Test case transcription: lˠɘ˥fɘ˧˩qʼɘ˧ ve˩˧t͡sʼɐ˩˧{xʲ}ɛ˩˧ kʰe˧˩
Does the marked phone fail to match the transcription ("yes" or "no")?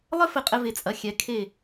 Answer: no